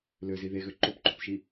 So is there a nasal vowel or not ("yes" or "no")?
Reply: no